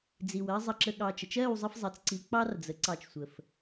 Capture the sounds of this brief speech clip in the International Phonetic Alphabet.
d͡z i˨ w ɜ˦ zˤ ə˧ ǁ ə˧ ɠ ɑ˧ t͡ʃ ə˨ t͡ʃ ɜ˦˨ w zˤ ə˦ f zˤ ɜ˨ t͡s ǀ i˨˦ k͡p ɑ˦ r d͡z ə˨ ǀ ɑ˧ t͡ʃ sʷ ə˨ f

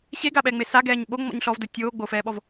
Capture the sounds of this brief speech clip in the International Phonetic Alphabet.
ɕ e ɡ a ɓ ɛ ŋ͡m e s a ɡ ɛː ɲ ɓ o ŋ͡m ɔ̰ ɲ ɬ ɔ v d o tʲ oː ɡ͡b o f ɛː ɓ ɔ v

